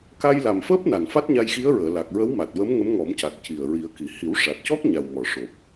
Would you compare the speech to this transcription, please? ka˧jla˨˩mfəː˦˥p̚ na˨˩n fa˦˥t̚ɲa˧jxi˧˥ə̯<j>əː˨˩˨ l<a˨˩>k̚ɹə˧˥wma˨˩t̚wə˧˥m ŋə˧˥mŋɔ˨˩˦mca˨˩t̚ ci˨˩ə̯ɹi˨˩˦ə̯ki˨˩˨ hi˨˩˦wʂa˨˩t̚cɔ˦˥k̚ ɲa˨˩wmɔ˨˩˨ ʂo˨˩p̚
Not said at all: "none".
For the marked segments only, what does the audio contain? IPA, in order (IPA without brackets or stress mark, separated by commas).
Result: ɹ, a˨˩